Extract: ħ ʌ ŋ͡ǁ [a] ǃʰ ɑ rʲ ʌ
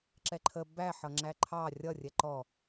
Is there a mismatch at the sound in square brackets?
yes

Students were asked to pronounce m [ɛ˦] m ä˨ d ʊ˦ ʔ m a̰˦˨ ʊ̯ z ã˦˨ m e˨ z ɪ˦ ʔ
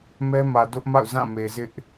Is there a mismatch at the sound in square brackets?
no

